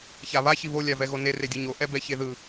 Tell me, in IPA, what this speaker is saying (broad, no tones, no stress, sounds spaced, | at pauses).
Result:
ç a β a ç i β o lʲ a v ɛ ɣ o n e r e dʲ u ɲ o ʔ ɛ b ɛ ç e ð ɯ